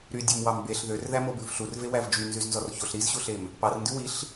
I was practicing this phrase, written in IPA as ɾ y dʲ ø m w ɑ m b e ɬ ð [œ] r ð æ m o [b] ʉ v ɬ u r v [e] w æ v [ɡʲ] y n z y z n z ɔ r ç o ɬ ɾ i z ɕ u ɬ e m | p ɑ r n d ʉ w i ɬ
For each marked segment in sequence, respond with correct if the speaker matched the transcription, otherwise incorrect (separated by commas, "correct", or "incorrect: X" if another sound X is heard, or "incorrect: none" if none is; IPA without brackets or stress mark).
incorrect: ø, correct, correct, incorrect: d͡ʒ